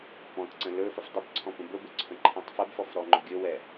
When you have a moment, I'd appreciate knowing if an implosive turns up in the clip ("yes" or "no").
no